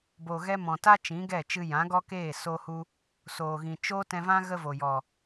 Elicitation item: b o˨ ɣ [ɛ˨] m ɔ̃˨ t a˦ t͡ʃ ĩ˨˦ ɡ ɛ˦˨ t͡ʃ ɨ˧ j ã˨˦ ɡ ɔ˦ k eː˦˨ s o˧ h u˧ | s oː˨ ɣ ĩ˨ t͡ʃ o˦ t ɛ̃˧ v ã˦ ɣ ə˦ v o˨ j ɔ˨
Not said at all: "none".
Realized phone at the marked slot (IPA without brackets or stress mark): ɛ˧